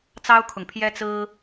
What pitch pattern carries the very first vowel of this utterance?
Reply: high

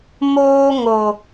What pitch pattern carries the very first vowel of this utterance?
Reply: high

